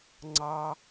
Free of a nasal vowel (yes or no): yes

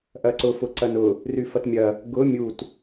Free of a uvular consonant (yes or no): yes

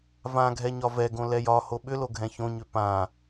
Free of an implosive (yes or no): no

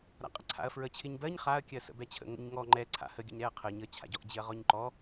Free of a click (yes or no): no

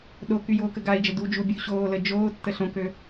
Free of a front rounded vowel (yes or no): no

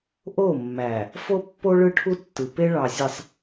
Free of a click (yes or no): yes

